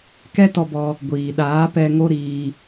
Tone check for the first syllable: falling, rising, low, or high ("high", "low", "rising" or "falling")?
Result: high